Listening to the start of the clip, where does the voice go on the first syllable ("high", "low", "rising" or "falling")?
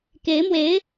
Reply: rising